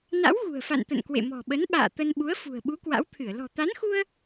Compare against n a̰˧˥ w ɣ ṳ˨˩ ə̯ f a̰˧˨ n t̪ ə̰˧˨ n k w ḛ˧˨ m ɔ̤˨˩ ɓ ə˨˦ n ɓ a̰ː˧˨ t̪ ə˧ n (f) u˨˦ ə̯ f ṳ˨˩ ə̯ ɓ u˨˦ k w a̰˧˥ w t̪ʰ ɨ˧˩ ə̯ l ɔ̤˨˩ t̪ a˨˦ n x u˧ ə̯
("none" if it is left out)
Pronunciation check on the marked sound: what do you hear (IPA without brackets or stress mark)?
ɓ